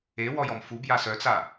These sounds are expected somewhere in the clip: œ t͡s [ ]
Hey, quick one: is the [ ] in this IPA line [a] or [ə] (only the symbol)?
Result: a